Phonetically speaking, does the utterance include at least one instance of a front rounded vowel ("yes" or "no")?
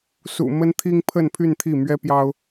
yes